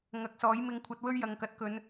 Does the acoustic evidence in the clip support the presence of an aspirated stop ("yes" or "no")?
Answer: yes